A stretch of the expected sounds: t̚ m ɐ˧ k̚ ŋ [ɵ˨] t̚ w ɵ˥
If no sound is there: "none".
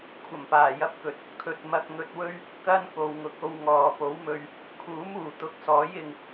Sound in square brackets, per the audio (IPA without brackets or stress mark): ɵ˧